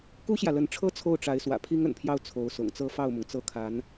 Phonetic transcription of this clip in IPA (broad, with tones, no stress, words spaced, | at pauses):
ku˥ɕjä˨lə˧˥nʈ͡ʂʰɤ˥ t͡sʰo˥˩ʊ̯ʈ͡ʂa˧˥ɪ̯ swä̰˨˩pʰi˥ŋə̰˨˩npʰjɑ˥˩ʊ̯ t͡sʰo˧˥ʊ̯sʊ̰˨˩ŋt͡sɤ˥ fɑ˥˩ʊ̯mʊ˩ŋt͡sɤ˥˩kʰa˧˥n